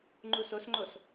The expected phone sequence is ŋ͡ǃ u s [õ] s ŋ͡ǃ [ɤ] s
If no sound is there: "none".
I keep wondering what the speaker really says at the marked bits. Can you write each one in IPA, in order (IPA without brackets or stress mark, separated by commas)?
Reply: o, o